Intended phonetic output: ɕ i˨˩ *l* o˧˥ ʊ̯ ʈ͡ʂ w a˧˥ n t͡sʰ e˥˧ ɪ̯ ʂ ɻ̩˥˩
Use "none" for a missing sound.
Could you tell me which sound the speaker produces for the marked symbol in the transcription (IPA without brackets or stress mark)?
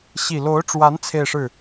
l